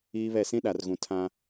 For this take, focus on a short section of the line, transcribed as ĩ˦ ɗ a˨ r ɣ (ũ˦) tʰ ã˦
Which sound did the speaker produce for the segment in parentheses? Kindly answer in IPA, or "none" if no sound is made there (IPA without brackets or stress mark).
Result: ũ˨